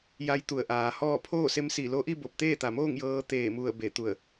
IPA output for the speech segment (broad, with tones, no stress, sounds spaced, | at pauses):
j a˧˥ j t̪ u˧˩ ə̯ ʔ aː˩˧ h ɔː˥˨ pʰ oː˥˨ s e˧˥ m s i˧˩ l o˧ ʔ i˥˨ b o˧˩ p̚ t̪ eː˥˨ t̪ a˩ m oː˥˨ ŋ j ɤː˧˥ t̪ eː˧˩ m u˧˩ ə̯ b e˧˩ t̪ u˧˩ ə̯